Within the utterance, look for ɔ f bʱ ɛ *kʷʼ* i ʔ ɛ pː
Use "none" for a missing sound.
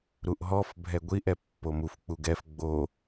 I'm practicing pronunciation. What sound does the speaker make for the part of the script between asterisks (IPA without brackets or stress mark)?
ɡʷ